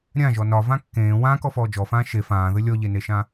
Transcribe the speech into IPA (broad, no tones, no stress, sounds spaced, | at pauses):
ɾʲ ã ʒ ɔ n ɒ v ã kː ẽː w ãː k ɔ f ɔː d͡ʒ ɔ f ãː ʃ e f ãː ð ɘ lʲ ɔ ʎ e n e ʃ ã